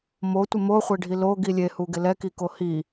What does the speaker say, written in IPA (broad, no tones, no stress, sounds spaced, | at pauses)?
m o tʷ ɪ m o χʷ e ɖʱ i l o ɡ i lʲ e h u ɡ ɪ l ɛ k i k o h i